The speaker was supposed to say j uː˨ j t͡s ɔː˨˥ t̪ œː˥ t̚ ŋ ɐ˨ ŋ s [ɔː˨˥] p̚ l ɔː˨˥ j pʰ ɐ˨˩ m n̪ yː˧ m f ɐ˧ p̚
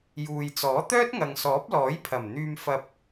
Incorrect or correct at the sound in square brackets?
correct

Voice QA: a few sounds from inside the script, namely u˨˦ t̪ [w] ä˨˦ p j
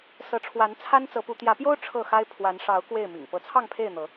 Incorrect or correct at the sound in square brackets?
incorrect: j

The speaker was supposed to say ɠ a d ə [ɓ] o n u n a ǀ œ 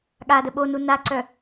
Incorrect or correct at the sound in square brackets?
correct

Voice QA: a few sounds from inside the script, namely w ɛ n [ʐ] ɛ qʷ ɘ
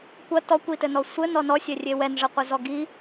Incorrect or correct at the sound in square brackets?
correct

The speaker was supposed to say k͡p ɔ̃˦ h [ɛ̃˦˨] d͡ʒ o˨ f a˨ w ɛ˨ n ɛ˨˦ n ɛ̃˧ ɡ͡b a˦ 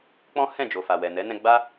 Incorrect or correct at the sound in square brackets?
correct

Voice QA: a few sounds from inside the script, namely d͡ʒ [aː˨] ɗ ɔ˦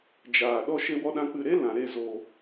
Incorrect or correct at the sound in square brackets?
correct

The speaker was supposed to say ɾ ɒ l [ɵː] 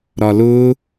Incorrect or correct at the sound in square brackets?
incorrect: ʊː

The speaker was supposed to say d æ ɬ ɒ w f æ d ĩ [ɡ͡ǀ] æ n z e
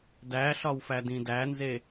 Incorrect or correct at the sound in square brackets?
incorrect: d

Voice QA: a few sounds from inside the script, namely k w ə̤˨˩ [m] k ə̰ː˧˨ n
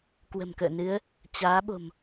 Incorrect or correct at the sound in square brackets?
correct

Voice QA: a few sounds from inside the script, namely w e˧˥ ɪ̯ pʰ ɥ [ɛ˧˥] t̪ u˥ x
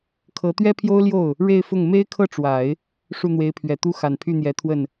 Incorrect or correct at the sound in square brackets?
incorrect: ɛ˨˩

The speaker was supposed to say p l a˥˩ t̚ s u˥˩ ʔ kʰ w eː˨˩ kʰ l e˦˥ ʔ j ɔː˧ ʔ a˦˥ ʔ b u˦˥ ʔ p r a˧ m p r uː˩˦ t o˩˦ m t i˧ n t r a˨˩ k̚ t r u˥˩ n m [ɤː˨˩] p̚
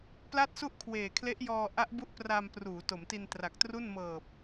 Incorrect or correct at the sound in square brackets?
correct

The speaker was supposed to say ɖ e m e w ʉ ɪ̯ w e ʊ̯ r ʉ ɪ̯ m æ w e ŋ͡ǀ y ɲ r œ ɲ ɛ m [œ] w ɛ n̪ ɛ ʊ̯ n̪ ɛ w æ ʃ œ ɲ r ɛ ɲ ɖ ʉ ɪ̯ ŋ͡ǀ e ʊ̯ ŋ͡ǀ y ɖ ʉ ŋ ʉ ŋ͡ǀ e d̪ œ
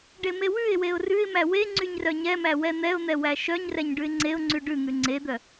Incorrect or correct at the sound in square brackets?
incorrect: æ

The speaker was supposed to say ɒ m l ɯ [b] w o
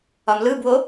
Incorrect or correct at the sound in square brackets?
correct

